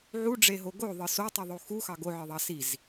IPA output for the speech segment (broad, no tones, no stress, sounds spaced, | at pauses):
ʕ u ɖ͡ʐ e ɦ o ɡ o ðˤ ɯ s o tˤ i ðˤ o x u x ɑ ɡ o ʕ ɯ ðˤ ɑ s i z